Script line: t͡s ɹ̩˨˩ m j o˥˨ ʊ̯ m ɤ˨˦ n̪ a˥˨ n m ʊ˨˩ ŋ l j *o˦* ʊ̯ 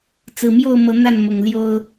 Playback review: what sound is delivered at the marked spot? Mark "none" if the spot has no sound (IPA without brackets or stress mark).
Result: o˦